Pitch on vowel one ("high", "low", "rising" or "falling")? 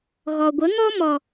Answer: low